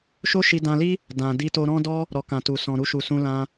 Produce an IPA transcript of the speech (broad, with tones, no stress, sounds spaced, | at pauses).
ʃ o˦ ʃ i˧ d ã˧ l i˦ | d ã˨ d i˧ t o˧ ɾ ɔ̃˦ d ɔ˦ | ɾ ɔ˨ k ã˨ t u˨ s ɔ̃˨ ɾ u˧ ʃ u˨ s ũ˧ l ã˧